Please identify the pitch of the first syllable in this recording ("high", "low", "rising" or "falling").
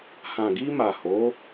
low